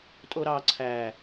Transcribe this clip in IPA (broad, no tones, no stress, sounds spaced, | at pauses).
tʼ o ɾ ɑ ǀʰ æ